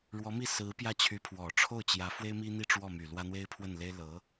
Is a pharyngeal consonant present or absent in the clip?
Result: absent